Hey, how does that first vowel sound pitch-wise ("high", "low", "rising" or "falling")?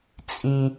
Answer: low